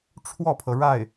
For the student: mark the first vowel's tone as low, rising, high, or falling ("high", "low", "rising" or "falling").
falling